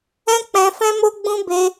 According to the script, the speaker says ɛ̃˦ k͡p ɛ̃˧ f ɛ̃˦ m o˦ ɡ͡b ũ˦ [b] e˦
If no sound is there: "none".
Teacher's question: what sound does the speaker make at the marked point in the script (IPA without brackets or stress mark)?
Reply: b